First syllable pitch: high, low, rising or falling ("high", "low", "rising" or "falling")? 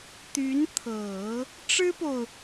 rising